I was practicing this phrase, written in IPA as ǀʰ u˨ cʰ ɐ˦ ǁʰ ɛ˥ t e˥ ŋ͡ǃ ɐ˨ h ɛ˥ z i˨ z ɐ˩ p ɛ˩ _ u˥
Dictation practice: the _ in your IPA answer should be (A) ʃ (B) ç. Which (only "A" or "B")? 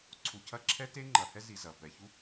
B